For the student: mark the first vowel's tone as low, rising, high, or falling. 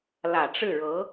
low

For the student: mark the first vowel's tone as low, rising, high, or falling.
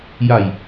low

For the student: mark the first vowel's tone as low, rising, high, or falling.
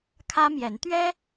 high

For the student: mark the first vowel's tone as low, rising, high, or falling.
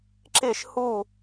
falling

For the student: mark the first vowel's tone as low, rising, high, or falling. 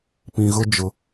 low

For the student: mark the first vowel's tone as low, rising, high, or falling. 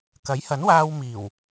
rising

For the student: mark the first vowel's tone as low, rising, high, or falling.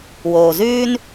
low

